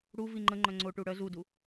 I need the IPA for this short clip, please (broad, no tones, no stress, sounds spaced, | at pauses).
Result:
ɽ u v i ŋ͡ǃ ə ŋ͡ǃ œ ŋ͡ǀ o ʈ u ɽ œ z u d u